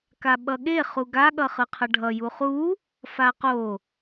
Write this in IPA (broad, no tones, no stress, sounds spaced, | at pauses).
k a ɓ ʌ ɠ e χ u ɡ a ɠ ʌ χ ɯ qʰ ʌ ɖʱ ʌ j u χ u | f a q o